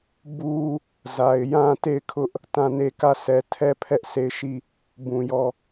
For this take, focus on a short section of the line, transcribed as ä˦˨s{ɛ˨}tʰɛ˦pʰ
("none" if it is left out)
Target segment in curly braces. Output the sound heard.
ɛ˨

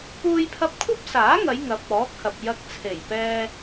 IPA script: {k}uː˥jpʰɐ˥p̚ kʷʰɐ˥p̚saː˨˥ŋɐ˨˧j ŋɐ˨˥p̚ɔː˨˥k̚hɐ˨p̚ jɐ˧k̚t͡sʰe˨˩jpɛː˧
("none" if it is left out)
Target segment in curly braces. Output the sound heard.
k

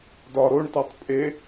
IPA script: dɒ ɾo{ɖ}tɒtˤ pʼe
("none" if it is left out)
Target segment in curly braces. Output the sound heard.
ɳ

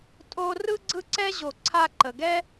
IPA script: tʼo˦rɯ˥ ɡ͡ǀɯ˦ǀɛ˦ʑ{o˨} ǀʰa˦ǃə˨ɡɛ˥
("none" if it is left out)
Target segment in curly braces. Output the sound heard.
o˨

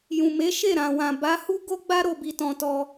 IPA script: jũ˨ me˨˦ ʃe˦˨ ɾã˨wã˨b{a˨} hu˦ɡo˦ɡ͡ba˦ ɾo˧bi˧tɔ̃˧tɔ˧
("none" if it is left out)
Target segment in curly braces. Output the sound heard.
a˨˦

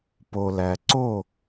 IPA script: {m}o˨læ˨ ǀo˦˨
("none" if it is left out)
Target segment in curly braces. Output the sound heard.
p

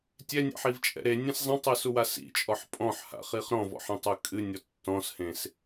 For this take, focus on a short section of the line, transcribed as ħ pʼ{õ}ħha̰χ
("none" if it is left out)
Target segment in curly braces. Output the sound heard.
ɔ̃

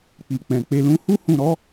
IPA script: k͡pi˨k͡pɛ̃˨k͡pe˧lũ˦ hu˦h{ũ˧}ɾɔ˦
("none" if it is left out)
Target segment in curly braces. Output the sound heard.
ũ˧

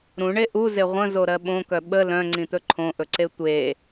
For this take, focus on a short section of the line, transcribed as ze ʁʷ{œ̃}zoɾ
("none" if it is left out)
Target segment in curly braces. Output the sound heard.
ə̃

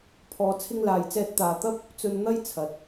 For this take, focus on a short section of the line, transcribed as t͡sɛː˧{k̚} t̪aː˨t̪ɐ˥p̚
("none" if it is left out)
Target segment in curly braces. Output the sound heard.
t̚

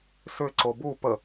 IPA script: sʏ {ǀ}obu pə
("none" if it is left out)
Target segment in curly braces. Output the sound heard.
ǀ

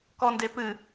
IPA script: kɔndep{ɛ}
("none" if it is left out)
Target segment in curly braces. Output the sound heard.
ɨ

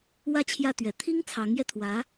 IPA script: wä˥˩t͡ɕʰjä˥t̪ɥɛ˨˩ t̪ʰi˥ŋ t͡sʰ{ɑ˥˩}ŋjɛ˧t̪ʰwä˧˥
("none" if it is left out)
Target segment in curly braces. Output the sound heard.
ɑ˧˥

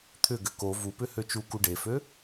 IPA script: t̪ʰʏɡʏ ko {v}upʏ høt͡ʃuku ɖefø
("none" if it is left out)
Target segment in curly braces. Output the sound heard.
v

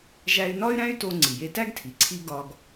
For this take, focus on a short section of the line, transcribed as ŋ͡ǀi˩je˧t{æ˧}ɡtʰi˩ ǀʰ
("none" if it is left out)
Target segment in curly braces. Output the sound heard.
æ˥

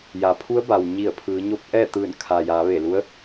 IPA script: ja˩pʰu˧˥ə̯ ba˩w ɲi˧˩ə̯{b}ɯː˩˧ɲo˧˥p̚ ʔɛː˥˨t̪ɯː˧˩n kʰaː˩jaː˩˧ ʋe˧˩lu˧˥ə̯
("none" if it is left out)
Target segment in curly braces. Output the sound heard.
pʰ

